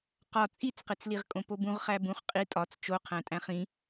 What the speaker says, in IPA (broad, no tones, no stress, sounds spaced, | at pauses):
q ɒ t͡sʼ i t͡s q e t͡s l i ʁ kʼ õ p o b ũ ʁ χ æ b ũ χ qʼ i tʼ ɒ t͡s t͡ʃ o qʰ æ̃ tʼ æ̃ χ ĩ